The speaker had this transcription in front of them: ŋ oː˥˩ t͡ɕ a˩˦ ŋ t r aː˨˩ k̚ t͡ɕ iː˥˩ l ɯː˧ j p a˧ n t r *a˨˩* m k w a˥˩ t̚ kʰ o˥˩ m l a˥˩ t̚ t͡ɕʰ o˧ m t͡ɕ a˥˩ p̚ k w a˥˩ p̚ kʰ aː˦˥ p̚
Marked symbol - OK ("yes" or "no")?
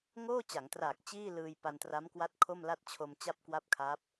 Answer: no